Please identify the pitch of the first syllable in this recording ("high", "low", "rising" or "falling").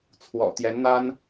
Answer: low